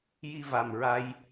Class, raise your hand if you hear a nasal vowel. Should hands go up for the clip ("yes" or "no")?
no